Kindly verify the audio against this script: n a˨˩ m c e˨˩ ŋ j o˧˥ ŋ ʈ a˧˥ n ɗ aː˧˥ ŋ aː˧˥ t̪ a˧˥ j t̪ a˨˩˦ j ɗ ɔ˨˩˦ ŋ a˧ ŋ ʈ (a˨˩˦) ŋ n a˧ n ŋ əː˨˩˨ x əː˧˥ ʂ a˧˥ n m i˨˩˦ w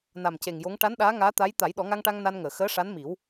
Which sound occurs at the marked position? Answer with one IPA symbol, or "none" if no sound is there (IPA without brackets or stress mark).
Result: a˧